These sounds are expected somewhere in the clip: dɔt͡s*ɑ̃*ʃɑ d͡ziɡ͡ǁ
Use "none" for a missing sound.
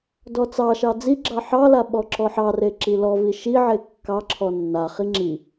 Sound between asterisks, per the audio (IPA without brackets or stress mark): ɑ